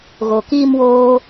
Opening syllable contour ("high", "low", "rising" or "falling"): low